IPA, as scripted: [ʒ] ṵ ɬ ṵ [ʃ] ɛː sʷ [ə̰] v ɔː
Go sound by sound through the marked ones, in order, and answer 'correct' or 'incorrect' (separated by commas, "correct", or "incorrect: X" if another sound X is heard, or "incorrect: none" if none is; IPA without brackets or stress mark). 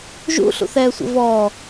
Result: correct, incorrect: θ, correct